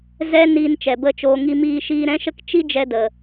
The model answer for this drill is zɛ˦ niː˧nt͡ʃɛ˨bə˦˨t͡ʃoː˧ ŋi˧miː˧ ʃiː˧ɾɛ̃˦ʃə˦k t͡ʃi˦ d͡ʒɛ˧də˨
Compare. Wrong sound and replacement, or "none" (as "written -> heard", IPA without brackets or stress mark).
none